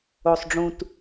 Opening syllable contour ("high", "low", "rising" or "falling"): low